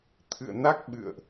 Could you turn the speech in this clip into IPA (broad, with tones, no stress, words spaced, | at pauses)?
t̪ʰɨ̰˧˨ə̯na˦˥k̚ ɓɨ̰˧˨ə̯ʔ